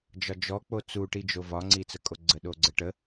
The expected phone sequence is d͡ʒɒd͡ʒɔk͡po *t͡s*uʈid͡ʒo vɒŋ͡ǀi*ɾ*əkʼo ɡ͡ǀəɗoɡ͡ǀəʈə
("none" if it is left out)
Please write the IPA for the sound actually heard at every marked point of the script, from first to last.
t͡s, t͡s

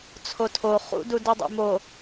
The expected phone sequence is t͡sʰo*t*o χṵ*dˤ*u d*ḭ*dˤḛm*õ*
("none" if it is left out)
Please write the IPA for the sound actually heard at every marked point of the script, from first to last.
tʰ, d, i, o

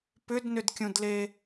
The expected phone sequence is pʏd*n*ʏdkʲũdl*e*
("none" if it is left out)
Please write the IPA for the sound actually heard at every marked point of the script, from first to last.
n, e

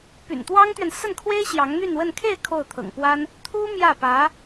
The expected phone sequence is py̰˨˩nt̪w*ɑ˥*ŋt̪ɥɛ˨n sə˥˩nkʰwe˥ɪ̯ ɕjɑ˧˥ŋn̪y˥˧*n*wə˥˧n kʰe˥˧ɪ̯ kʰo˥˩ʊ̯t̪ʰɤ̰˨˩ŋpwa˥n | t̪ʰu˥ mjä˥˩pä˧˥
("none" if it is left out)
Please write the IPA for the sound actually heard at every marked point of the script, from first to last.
ɑ˥, n

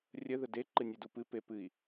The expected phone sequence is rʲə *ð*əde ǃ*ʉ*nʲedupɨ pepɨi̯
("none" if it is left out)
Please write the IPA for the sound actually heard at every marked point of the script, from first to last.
ð, ɨ

